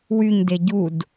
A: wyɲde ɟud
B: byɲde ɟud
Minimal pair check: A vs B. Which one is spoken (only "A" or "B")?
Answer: A